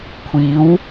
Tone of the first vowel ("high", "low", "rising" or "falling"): rising